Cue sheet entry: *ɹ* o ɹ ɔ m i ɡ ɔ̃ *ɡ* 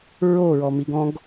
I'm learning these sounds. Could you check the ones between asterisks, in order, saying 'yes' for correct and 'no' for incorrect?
yes, yes

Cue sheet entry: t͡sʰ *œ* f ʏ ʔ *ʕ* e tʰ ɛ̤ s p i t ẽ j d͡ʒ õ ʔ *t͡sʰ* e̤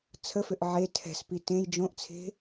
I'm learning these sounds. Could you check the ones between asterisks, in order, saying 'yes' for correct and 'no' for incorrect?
no, yes, yes

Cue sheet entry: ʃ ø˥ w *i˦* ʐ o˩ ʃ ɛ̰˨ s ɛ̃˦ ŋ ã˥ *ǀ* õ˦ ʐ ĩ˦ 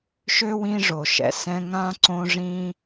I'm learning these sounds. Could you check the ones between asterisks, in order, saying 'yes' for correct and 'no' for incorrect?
no, yes

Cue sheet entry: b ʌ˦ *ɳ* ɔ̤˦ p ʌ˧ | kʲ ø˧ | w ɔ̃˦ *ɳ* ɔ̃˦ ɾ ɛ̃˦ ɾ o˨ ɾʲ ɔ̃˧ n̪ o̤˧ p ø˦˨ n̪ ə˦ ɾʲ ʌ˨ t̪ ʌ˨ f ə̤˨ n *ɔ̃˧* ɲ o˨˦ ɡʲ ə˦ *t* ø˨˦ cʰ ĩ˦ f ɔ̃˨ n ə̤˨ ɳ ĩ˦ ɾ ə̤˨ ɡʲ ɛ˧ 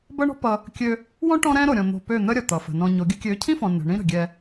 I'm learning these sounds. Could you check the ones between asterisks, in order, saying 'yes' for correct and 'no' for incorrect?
yes, no, yes, no

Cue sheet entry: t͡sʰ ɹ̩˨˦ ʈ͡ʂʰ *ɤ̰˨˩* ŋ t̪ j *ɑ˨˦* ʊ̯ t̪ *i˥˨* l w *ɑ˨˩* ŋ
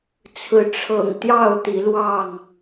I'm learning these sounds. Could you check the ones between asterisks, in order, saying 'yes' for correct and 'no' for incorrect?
yes, no, no, no

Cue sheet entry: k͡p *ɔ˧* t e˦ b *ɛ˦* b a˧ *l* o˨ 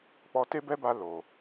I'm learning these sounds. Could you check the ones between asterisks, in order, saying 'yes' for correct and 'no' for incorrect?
yes, yes, yes

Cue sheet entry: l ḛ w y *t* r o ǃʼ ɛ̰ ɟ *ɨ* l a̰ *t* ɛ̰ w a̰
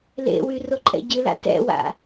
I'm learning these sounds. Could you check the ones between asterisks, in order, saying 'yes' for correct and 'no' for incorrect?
no, yes, yes

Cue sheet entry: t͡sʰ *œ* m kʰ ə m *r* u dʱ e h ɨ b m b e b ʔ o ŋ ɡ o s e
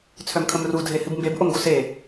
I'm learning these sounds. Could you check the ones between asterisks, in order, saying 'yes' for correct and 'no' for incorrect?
yes, yes

